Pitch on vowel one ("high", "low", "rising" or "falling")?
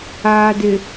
low